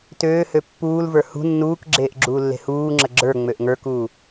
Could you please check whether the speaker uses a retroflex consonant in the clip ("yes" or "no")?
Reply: no